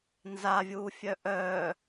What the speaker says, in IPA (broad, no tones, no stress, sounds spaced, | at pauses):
n z a vʲ uː fʲ œ ʔ œ